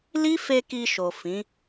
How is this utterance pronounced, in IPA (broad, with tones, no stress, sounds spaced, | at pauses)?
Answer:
l i˦ f e˧ k i˧ ʃ o˨ f ĩ˨˦